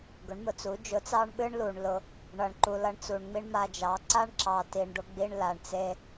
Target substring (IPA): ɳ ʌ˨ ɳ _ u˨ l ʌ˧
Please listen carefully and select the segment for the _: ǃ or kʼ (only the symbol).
ǃ